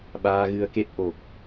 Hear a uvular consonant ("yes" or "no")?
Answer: no